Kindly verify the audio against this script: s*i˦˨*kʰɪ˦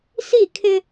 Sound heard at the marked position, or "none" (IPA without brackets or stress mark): i˦˨